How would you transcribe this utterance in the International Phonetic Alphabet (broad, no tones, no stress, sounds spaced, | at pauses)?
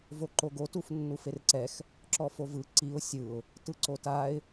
v o ǃ o ɡ o t u f nː u f e r ǀ ɛ x | ǁ ɔ f o v ɯ ǀ i ʊ̯ sʲ ɯ ʊ̯ | t ɯ ǀ o t a ɪ̯